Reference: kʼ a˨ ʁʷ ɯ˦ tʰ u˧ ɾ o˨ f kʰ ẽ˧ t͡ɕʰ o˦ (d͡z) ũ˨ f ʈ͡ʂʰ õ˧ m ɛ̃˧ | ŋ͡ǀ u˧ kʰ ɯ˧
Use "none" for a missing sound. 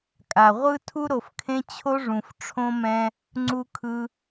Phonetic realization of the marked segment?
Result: ʐ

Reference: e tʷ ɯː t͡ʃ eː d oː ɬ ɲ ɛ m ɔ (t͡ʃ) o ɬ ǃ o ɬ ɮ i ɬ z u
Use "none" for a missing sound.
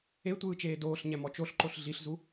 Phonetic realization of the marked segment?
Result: t͡ʃ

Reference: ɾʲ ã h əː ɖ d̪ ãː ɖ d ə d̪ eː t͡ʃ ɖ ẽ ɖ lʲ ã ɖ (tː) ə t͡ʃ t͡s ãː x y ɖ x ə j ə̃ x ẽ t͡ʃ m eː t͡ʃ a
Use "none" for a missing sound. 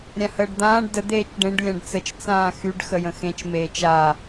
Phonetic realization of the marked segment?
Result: t͡s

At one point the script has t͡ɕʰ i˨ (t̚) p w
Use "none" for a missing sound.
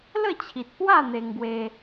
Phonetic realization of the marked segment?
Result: t̚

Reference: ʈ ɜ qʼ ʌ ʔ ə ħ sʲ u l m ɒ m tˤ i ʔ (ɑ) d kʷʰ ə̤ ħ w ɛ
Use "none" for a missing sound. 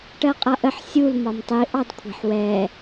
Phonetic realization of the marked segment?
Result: ɑ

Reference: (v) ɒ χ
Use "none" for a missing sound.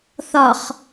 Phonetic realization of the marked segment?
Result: θ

